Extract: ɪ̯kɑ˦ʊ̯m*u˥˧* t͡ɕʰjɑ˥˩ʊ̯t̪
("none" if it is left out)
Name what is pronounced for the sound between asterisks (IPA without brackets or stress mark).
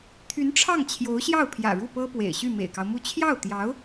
u˥˧